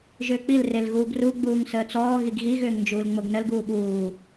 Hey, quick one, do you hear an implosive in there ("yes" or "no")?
yes